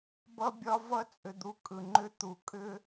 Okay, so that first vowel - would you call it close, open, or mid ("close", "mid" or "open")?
mid